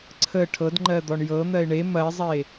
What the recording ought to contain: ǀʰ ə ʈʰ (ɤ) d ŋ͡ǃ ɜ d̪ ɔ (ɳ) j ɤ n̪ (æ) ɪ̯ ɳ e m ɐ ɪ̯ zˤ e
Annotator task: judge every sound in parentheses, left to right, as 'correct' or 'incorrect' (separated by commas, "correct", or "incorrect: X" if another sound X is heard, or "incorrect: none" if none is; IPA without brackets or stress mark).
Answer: correct, correct, incorrect: ɜ